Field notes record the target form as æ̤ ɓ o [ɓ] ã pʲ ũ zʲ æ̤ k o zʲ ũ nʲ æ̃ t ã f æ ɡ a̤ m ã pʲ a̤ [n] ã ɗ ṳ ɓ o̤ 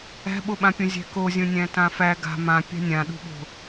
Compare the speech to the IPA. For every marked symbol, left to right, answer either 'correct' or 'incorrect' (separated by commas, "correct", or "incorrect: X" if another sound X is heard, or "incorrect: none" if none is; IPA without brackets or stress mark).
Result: correct, incorrect: nʲ